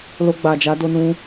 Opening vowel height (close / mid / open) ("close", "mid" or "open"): mid